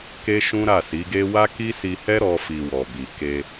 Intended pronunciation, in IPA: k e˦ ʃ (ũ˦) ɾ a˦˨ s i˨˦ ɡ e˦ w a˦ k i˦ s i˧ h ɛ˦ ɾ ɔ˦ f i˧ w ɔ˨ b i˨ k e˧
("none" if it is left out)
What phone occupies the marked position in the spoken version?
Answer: ũ˦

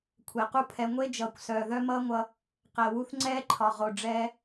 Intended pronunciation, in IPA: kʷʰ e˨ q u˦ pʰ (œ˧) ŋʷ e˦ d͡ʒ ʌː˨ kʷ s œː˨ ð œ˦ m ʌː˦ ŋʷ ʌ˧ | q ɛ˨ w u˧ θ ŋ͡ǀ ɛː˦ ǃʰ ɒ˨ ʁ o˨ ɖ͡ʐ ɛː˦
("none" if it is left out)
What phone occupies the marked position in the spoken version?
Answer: ɛ˧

